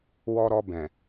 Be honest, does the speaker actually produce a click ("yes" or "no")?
no